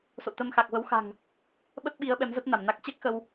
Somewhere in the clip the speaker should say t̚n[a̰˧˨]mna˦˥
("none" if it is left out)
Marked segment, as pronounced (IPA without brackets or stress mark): a˧˩